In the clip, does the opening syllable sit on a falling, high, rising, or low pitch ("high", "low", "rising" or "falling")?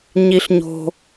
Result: high